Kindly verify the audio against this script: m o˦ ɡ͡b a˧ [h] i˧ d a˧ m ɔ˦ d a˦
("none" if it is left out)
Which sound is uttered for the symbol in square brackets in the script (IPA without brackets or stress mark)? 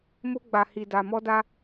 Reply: h